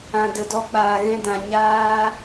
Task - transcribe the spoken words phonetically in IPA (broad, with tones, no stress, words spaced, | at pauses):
ã˨də˨dɔ˧k͡paː˨ ɣɛ̃˧dã˨ ɲaː˧